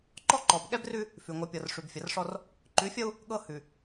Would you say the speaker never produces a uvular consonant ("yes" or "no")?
yes